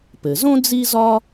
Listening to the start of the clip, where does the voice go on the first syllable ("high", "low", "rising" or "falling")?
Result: low